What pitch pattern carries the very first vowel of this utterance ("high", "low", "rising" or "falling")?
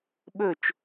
falling